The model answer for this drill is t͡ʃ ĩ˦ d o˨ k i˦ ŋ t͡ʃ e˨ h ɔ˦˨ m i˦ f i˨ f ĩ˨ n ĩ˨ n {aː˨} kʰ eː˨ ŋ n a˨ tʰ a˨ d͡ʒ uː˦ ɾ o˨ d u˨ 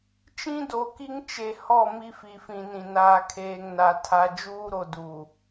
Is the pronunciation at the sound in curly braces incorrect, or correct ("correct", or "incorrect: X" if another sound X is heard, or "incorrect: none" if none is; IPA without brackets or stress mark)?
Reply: correct